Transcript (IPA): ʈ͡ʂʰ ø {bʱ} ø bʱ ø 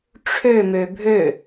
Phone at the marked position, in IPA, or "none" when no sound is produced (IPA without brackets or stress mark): m